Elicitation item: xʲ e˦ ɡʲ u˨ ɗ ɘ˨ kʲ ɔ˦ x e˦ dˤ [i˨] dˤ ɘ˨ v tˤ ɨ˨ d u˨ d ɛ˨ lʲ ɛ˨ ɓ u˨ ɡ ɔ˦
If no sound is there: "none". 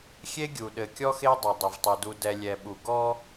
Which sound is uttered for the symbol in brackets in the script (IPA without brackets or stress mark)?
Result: e˨